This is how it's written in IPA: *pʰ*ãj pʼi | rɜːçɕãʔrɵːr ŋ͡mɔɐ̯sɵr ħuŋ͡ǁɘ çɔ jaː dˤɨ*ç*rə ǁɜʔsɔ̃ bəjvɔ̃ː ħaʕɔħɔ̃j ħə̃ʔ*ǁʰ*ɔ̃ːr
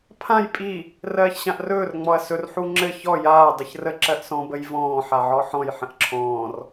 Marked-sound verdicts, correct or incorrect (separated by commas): correct, correct, correct